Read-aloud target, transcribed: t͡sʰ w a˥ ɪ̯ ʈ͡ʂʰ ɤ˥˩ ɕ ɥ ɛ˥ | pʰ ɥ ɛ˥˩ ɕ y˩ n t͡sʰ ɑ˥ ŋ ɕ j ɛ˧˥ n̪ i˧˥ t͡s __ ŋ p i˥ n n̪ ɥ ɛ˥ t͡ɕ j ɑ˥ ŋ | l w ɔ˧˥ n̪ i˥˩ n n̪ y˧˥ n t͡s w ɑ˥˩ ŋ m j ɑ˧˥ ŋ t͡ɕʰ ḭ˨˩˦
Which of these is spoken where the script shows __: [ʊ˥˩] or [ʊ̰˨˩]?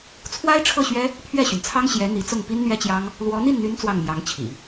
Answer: ʊ˥˩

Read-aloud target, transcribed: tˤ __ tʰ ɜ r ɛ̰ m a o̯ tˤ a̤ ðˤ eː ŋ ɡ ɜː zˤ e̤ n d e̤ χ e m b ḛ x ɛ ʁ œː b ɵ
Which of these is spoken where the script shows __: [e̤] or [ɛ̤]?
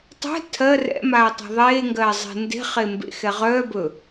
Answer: ɛ̤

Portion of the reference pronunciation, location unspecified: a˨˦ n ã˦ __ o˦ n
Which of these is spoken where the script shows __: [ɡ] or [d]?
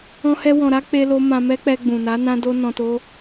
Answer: d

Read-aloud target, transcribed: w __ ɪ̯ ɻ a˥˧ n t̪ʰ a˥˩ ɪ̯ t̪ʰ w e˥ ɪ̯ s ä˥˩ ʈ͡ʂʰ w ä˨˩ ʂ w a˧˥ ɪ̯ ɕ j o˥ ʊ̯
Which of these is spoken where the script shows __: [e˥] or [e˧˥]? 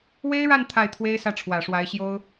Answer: e˥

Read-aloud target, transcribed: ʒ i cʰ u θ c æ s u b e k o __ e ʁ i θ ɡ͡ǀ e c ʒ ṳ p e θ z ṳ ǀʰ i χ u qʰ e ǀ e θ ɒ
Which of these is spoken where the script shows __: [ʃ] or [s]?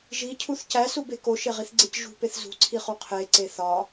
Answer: ʃ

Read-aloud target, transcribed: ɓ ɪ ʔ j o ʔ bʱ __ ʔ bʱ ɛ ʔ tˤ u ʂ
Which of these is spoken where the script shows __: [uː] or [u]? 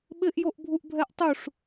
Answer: u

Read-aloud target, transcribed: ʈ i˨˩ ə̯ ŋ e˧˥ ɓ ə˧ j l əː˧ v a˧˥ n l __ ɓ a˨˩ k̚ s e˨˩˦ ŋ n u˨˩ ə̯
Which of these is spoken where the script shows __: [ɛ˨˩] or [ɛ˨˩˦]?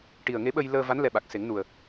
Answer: ɛ˨˩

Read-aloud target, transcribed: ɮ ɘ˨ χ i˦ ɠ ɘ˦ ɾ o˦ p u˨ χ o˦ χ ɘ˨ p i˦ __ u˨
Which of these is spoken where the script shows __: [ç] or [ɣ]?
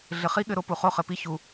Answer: ç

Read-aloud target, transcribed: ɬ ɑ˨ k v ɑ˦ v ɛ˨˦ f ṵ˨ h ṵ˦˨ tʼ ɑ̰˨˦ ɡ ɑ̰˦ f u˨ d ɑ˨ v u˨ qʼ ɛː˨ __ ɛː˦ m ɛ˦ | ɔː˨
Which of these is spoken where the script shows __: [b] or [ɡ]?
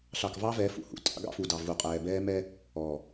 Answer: b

